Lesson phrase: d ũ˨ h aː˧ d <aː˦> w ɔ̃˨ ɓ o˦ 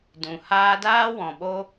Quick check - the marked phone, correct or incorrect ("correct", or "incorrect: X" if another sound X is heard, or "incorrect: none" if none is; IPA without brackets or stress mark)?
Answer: correct